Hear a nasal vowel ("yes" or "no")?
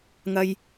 no